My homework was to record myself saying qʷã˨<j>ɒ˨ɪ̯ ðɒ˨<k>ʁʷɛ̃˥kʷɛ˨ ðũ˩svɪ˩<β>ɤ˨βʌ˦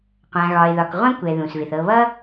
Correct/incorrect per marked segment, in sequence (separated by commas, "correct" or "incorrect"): incorrect, correct, incorrect